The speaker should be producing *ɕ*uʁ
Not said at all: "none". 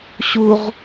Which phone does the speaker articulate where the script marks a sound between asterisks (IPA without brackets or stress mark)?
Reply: ɕ